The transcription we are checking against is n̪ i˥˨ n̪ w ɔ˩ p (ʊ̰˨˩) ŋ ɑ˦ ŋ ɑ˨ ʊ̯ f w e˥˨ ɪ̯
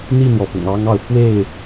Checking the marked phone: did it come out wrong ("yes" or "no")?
no